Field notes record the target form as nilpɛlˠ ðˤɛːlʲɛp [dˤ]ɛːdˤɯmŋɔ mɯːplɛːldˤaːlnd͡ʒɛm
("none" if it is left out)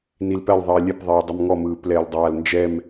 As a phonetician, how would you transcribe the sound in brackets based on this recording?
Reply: ðˤ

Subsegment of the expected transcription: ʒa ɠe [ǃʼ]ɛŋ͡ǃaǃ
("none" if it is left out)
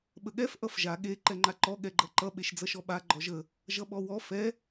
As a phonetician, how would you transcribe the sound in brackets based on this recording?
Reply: ǃ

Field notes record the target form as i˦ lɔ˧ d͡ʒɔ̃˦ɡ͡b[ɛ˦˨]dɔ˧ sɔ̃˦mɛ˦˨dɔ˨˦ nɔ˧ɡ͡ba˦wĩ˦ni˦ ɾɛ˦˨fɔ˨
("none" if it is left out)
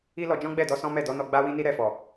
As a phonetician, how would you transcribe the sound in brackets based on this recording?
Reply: ɛ˦˨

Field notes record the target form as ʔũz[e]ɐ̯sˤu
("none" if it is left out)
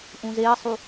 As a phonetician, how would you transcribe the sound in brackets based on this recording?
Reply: e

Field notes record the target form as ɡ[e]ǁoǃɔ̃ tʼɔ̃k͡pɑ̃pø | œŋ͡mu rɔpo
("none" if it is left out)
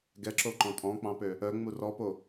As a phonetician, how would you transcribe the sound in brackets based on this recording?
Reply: ɛ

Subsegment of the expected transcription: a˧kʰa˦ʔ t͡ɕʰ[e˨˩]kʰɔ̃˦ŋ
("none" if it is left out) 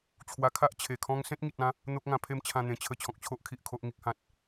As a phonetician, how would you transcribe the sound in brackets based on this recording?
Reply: e˨˩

